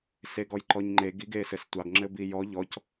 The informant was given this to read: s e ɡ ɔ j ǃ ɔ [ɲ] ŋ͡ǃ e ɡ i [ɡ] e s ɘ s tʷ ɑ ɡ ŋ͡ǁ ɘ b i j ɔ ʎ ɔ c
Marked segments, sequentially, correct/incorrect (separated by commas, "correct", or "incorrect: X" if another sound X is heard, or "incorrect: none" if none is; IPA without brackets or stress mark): correct, correct